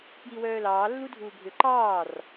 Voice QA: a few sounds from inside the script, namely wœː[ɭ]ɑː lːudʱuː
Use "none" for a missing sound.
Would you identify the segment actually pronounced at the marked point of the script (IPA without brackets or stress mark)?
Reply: l